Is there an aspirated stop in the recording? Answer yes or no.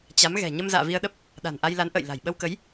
no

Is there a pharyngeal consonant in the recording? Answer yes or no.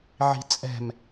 yes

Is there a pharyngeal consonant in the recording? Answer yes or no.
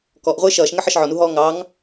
yes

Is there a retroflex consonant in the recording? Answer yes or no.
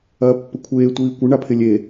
yes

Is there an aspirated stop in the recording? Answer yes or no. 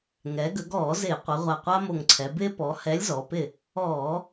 yes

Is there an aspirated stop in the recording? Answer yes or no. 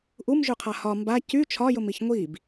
yes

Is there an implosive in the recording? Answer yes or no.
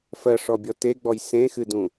no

